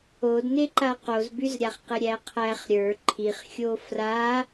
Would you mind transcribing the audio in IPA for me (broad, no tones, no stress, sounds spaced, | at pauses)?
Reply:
o d n e ǃ a q o z b y z ɾʲ a χ q ɪ ɾʲ æ qʰ æ χ ɾʲ ə˞ ǃʰ i χ xʲ o f r a